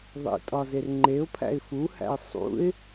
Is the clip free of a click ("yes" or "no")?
no